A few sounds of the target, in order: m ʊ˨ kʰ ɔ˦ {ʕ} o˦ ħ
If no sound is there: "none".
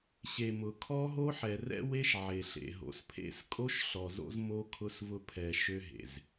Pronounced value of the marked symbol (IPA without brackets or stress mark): ɦ